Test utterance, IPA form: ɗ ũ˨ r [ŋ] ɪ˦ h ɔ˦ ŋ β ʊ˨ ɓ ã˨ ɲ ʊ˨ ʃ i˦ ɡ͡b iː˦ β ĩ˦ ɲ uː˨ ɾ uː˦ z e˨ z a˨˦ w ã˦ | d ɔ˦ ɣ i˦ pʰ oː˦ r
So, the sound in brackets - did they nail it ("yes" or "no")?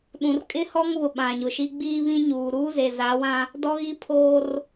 no